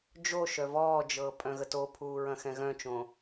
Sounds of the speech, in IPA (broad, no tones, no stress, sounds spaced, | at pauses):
d͡ʒ o ʃ œ v ɔː d͡ʒ ɤː pʼ œ̃ ɣ ə t o pʰ uː ɹ ɐ̃ x ɛ̃ ɣ œ̃ t͡ʃ õː